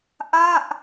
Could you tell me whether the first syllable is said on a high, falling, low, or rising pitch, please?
falling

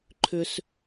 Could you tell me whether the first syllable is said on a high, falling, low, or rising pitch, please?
low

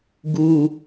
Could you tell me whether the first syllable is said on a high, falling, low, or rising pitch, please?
low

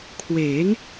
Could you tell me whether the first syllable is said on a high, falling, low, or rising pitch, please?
rising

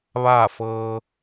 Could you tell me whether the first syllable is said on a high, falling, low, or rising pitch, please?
falling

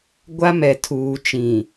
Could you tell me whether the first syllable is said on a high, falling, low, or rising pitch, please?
high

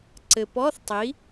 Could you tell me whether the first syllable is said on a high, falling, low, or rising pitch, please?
low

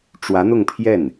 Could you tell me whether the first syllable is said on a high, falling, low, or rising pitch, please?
rising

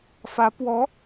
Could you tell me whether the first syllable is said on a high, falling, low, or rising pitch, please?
rising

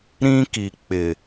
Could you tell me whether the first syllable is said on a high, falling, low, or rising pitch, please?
high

